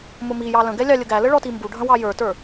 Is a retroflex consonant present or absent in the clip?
present